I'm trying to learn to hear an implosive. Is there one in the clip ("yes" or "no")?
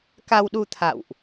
yes